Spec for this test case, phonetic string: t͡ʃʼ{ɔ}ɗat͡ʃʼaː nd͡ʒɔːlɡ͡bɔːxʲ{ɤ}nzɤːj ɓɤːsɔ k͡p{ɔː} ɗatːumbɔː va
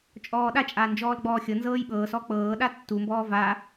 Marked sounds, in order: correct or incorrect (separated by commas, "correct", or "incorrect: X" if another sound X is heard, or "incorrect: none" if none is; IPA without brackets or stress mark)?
incorrect: ɔː, correct, incorrect: ɤː